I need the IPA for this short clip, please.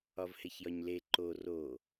ɒ v h e ç j ɒ ɲ l e ǃ o r o

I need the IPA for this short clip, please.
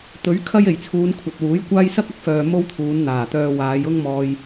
t̪ ɵ˨˥ ɥ kʰ ɐ˥ j e˨˩ j t͡sʰ uː˨˧ n kʷʰ ɐ˨ t̚ w uː˨˥ j kʷ aː˥ j s ɐ˥ k̚ ɐ˧ k̚ f œː˨ m o˥ w t̪ʰ uː˨˧ n n̪ aː˨˩ t̪ œː˧ w aː˨˧ j ʊ˥ ŋ m ɔː˧ j

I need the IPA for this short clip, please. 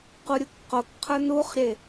q u ɾʲ u k q o k qʰ ə˞ n u χ ɾʲ e

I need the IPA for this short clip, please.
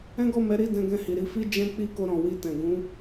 ɛ̃˦ ɡ ɔ˦˨ m ɛ˨˦ ɾ i˦˨ d ɛ̃˧ ɡ ɛ̃˧ h i˨ ɾ i˧ f i˦ d͡ʒ ɛ̃˦ k͡p i˦˨ k o˧ ɾ ɔ̃˨ w i˧ t ɛ̃˨ ɡ ũ˨˦

